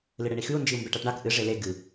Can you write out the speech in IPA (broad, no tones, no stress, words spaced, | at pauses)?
lɨɽeɳixʉu̯ nd͡ʒiu̯mbeʈaʈɳak ʔɨ ʐele ɡɨ